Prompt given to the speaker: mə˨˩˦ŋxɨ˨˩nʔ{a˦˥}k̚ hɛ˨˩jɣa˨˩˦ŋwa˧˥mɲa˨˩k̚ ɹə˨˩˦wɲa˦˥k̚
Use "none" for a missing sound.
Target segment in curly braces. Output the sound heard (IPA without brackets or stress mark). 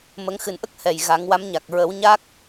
ə˦˥